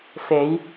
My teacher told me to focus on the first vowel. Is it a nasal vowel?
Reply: no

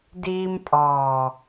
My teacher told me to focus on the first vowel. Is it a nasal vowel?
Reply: no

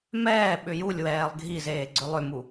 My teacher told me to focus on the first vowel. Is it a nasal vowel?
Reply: no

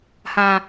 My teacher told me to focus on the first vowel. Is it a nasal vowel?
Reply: yes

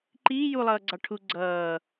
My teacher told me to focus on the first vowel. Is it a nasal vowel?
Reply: no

